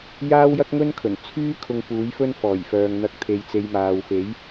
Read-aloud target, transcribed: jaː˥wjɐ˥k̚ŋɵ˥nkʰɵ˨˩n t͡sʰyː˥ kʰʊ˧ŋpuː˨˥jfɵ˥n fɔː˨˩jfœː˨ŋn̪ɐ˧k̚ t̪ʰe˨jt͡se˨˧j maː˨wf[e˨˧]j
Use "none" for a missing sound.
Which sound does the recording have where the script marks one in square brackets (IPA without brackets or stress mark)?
e˨˥